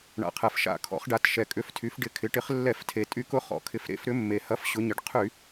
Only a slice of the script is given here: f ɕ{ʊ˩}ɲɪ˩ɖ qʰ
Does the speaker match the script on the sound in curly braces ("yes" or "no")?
no